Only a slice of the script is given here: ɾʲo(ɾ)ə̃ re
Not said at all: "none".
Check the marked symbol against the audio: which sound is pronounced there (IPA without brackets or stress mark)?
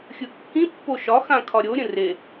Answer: ɾʲ